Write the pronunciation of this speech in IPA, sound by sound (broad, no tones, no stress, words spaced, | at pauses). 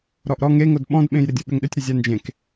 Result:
ɾɔʔɾɔ ŋeŋod ɓɔ̃dɓẽj ɾɪdʲoɓʏŋɗʏtʲ ɾʏzʲand͡ʒẽk